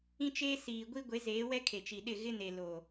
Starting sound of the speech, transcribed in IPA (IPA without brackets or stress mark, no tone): ĩ